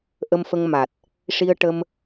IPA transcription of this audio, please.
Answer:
ʔ ə˧ m f ə˧ ŋ m a˨˩ t̚ | ʂ i˧ ə̯ ʈ ə˧ m

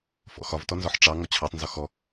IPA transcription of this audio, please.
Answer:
f ɔ̰ x ɒ v t ɔ n z ɔ ħ ʈ͡ʂ ɑ ŋ ɔ t͡ɕʰ ɑ tˤ n z ɒ x ɔ

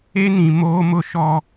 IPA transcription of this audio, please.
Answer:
e˦ n ĩ˨ m oː˦ m ʊ˦ ʃ ɔ˦

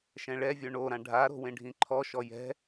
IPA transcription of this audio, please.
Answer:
ʃ ɛ̃ ɭ ɛ vʲ o ɳ o ɾ ã ɖʱ a ɾ o̤ w ẽ ɖʱ ĩ ǃʰ ɔ ʃ ɔ j ɛ̤

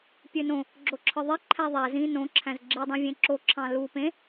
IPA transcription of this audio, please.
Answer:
pʲ ø n õ | ɡ͡ǁ o ǁʰ ɯ ðˤ e ǃʰ æ ðˤ æ z ĩ n õ ǁʰ æ̃ z ɡ͡ǁ i dˤ ẽ vʲ ẽ ǁ o ǁʰ ɑ̃ l u p ẽ

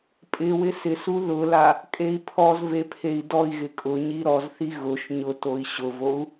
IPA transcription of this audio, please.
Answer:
pʼ ɪ w ɪ s ɪ s u ð ʊ l a | kʼ e i̯ pʰ ɔ z v e pʰ e i̯ d ɔ i̯ ɣ ɪ kʼ ʊ ɲ i ɾ ɔ z θ i ɣ ʊ ʃ ɲ ʊ t o i̯ ɕ ʊ v o u̯

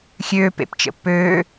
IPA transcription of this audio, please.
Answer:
xʲ øː p ḛ p t͡ʃ ə̰ pː øː

